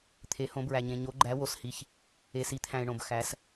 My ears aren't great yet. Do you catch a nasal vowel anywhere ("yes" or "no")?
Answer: yes